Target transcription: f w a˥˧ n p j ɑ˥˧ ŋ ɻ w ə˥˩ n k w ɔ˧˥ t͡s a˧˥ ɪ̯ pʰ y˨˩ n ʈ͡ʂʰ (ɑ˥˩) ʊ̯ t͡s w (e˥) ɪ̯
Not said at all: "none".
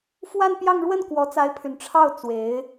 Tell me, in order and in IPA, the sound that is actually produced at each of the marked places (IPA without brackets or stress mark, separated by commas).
ɑ˥˩, e˧˥